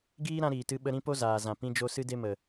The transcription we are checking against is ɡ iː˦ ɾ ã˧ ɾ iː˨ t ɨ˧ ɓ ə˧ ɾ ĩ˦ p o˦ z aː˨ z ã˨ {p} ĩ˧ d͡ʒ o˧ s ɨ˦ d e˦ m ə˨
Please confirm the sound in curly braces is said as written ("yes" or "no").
yes